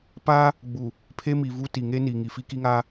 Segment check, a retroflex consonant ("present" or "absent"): absent